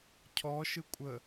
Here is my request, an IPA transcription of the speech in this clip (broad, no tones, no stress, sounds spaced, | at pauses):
cʰ ɔ ʃ ɯ kʷʼ ə